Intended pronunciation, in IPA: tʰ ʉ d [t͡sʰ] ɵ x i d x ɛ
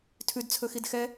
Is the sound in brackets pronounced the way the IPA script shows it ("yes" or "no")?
yes